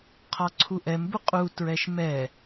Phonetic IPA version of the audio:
qʰ ɒ ǀʰ u ʔ ɛ m b u qʼ u t ɹ ɛ ʃ m ɛ

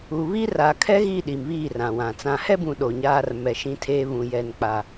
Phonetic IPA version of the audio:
uː˨ β i˦ r aː˨ kʰ ɛ˦ ɣ i˦˨ ɗ i˨ m β iː˦˨ r ã˨ w ã˨ t͡s ã˨ h ɛ˦ b ũ˨ ɗ o˨ ɲ aː˦ r m ɛ˨ ʃ ĩ˦ tʰ eː˦ β ũ˨ j ɛ˨ n k͡p a˨

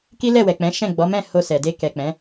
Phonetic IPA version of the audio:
k i˦ l ɛ˦˨ w ɛ˨ k͡p ɛ̃˨˦ ʃ ɛ̃˦˨ ɡ͡b ɔ˨˦ m ɛ̃˦˨ h o˧ s ɛ˨ d e˧ k ɛ˨ k͡p ɛ̃˨˦

